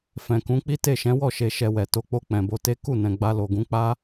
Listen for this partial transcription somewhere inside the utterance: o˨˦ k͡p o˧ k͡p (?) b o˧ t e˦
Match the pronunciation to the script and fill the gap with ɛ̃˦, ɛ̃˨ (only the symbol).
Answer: ɛ̃˨